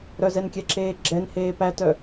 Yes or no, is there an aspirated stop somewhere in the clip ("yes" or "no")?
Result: no